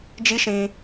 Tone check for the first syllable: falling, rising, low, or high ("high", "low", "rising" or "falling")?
high